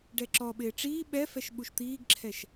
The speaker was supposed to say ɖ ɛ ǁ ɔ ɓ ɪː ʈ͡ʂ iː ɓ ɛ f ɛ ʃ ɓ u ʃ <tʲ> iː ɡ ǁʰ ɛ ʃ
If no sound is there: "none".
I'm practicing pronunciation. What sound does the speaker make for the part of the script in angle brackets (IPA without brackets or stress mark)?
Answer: t̪